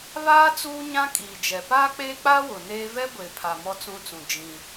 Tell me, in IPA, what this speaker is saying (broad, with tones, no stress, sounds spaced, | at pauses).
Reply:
β aː˦ t͡s uː˦ ɲ ã˦ kʼ iː˨ d͡ʒ ɛ˨ p aː˦ k͡p eː˦ k͡p aː˦ w ʊ˨ n eː˦ v ɛ˦ ɡʷ e˨ pʰ a˨ m ɔ˦ t͡s ũ˦ t͡s ũ˨ d͡ʒ ĩ˦